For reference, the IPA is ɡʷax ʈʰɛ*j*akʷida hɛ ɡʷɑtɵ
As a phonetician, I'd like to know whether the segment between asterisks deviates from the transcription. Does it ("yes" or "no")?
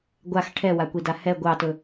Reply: yes